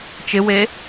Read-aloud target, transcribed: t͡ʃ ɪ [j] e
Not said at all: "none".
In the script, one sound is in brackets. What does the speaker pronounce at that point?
w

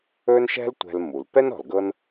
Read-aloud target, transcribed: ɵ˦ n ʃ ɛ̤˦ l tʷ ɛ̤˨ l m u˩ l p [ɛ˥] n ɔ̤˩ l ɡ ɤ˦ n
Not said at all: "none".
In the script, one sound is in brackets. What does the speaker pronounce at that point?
ɛ˥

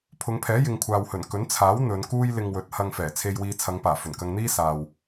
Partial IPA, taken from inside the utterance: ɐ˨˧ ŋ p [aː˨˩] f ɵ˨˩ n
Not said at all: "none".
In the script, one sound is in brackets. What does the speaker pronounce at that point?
aː˨˩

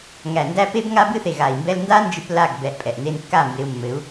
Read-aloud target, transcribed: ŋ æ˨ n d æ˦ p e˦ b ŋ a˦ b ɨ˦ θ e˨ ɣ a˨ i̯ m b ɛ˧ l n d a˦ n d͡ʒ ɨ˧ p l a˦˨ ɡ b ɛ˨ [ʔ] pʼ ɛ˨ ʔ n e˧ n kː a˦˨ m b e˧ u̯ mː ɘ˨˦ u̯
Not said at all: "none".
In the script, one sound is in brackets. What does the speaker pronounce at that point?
ʔ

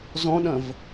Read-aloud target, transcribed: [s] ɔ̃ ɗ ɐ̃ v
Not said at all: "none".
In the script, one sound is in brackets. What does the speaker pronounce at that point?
z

